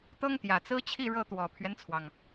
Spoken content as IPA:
t̪ ɤ˥ ŋ t̪ j ä˨˩ t͡s ɹ̩˥ t͡ɕʰ i˥˧ ɻ ɤ˥˩ t̪ w ɔ˨˩ pʰ ɥ ɛ˦ n t͡sʰ w ɑ˩ ŋ

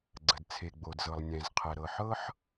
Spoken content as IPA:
ɡ͡ǀ ə˨ d t͡sʰ e˨ ɡ͡b o˨ d z ɤ˨ lˠ nʲ ɛ̃˨ z qʰ ɛ˨ ɾ ɤ˨ ħ ɤ˦ ħ

